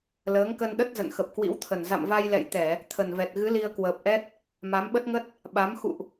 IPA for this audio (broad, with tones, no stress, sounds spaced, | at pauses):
l əː˨˦ ŋ k ə˧ n ɗ ə˦˥ t̚ z ə̰˧˨ n x ə˨˩ p̚ k w ḭ˧˥ w t̪ʰ ə˨˩ n z a̰˧˨ m v a˧ j l ɛ̰˧˨ j t̪ ɛ˧˩˨ | t̪ʰ ə˨˩ n v ɛ˨˩ t̚ ɣ ɨ˨˦ l i˧ ə̯ k w əː˨˩ p̚ ʔ ɛ˦˥ t̚ | m a˨˦ m ɓ ə˦˥ t̚ ŋ ə˦˥ t̚ | ɓ a˨˦ m x ṵ˧˨ ʔ